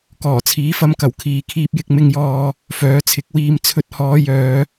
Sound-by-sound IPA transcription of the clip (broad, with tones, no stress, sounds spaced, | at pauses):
k ɔː˨˩ t͡sʰ iː˨˥ f ɐ˧ m k ɐ˨˩ w kʰ iː˨ kʰ iː˧ p̚ j ɪ˧ k̚ m ɪ˧ ŋ j ɔː˧ | f œː˨˥ t͡sʰ ɪ˨˥ k̚ w iː˧ m t͡sʰ ɵ˧ t̚ h ɔː˨˧ j œː˨˧